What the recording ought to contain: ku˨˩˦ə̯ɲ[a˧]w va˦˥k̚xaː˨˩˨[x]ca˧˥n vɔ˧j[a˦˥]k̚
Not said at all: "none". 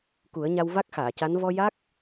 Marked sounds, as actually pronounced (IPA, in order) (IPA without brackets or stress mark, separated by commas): a˧, none, a˦˥